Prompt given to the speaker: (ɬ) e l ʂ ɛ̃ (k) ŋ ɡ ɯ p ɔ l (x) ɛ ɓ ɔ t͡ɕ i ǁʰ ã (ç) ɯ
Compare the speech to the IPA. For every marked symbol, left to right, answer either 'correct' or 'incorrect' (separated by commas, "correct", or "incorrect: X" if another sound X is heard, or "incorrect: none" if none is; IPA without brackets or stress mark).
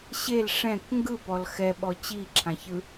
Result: incorrect: ɕ, correct, correct, correct